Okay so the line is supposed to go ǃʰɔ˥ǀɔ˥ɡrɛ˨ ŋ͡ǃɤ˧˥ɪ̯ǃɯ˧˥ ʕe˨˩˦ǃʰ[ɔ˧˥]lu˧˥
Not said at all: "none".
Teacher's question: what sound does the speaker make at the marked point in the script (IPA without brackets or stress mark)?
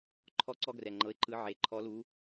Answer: ɔ˧˥